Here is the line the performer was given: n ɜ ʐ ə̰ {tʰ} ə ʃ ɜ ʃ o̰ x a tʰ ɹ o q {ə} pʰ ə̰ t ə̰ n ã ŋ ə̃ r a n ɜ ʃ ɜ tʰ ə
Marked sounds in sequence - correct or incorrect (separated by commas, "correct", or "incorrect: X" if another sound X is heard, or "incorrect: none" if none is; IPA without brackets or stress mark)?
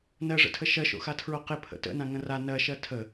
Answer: correct, incorrect: ɪ